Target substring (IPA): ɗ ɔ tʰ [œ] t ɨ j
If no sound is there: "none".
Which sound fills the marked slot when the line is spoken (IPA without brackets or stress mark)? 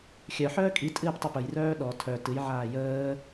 œ